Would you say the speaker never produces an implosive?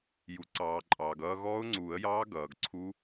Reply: yes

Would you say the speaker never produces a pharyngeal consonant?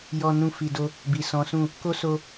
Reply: yes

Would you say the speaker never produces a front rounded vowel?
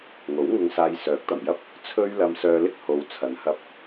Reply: no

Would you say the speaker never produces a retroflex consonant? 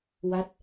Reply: yes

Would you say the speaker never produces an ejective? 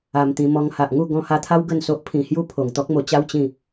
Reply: yes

